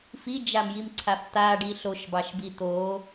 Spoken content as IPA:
f i d͡ʒ a m j i m ǀʰ a f t̪ a ɖ i ɬ o ʃ b ɑ ʃ b i t̪ o

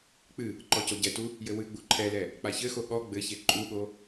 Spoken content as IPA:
k͡p ɨ | ǃ ɔ c o ɟ ɛ t u | j ɘ w ɨ ɡ͡b u ǃʰ ɛ l ɛ | k͡p a ç ɘ x o ɠ ɔ ɡ͡b ɘ ç e ǃʼ u ɠ o

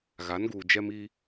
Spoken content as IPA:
ɣ a˨˦ n ɡ uː˨ d͡ʒ ɛ˦ m i˦

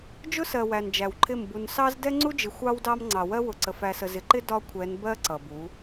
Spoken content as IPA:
d͡ʒ ʊ˦ s ɜ˨ w æ˨ n d͡ʒ æ˨ w ǃʰ ɪ˦˨ m b u˨ n s ɑ˦ z d ɛ˦ ŋ͡ǀ u˦ d͡ʒ ɪ˨ xʷ ɑ˦ w d ɑ˦ m ŋ͡ǀ ɑ˨ w ɜ˦ w ʊ˨ ǀ ə˨ f æ˨ s ə˨ z ɪ˨ ǃ ɪ˦ d ɒ˦ kʷʰ ɛ˨˦ n b ɜ˦ ǀ ʌ˨ b u˨˦

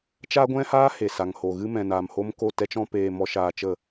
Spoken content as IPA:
t͡ʃ a˦ ɡʷ ɛ̃˦ h aː˦ h e˨ s a˨ ŋ h o˨ ɣ ɨ˦ m ɛ̃˨ n aː˨ m h o˦ m k o˦˨ t ɛ˦ t͡ʃ ɔ̃˦ p eː˦ m ɔ˦ ʃ aː˧ t͡ʃ ə˦˨

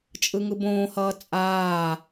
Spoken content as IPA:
t͡ʃʼ ɯ ŋ ɯ b õː h ʌː t͡sʼ aː

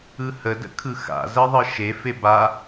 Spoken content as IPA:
ɯ h ə d ə̰ kʰ ɯ x a̰ z ɜ ðˤ ɯ ʃ e f e b a

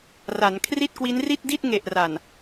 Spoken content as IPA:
r a˩˦ n kʰ r i˥˩ t̚ k w i˦˥ n r i˥˩ t̚ d i˥˩ t̚ ŋ e˨˩ ʔ r a˨˩ n

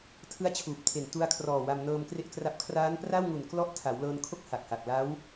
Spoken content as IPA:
tʰ ɯ˦˥ a̯ t͡ɕʰ uː˨˩ p̚ tʰ e˨˩ n t u˧ a̯ kʰ r ɔː˨˩ w a˧ m n ɤː˧ m k r e˥˩ ʔ k r a˦˥ p̚ kʰ r aː˦˥ n p r a˥˩ w ŋ u˨˩ n k l ɔ˦˥ ʔ tʰ a˩˦ w l ɤː˧ n kʰ o˥˩ k̚ h a˨˩ k̚ h a˨˩ k̚ l a˦˥ w

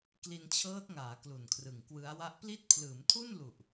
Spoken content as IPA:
k l i˧ n t͡ɕʰ ɤː˦˥ t̚ ŋ aː˩˦ k l u˨˩ n kʰ r ɯ˨˩ ŋ k w ɯ˦˥ a̯ w a˥˩ ʔ p l i˦˥ t̚ pʰ l ɯː˩˦ m tʰ u˥˩ n l u˨˩ ʔ

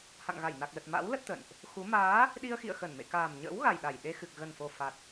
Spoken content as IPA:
h a̰˧˨ ŋ ɣ a˧˩ j n a˨˩ k̚ l ə˨˩ t̚ m a̰˧˥ w l ə˦˥ t̚ t̪ ə̰˧˨ n ʔ | x u˨˦ m aː˨˦ | ɗ i˧ ə̯ x ḭ˧˨ ə̯ x ə˧˩ n m ḛ˧˨ k aː˨˩ m ɲ ə̰ː˧˥ w ɣ a˨˩ j ɗ a˧˩ j ɗ e˧ x ɨ˨˩ k̚ ɣ ə˨˩ n f o˨˩ f a˨˩ t̚

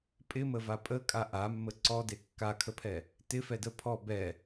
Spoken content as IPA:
pʼ ɪ m ə v a pʼ ə kʼ a ʔ a mː ə ǀ ɔ d e kː a kʰ ə pʰ ɛ | t ɪ f ɛ d ə pʰ ɔ b ɛ

